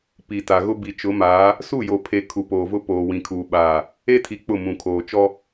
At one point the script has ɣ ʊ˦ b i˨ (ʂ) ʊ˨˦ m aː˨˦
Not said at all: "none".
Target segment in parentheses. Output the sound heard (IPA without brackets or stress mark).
t͡ʃ